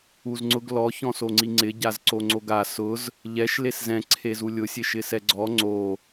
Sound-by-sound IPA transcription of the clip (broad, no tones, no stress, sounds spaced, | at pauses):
u z ŋ͡ǀ ʊ ɡ l ɔ ç ɔ̃ s o ŋ͡ǀ i ŋ͡ǀ ɪ ɟ a z ǀ o ŋ͡ǀ o ɡ a s ʊ z | ʎ ɛ ʃ l e s z ɛ̃ ǀʰ e z u lʲ ʊ sʲ e ʃ ɪ s ɛ ɡ͡ǀ ɔ ŋ͡ǀ o